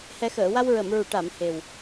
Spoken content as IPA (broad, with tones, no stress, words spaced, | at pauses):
hɛ˨˩˦xəː˨˩˨wa˧w ɹə˨˩˨mɹu˨˩˨ ʈa˨˩˨m he˨˩w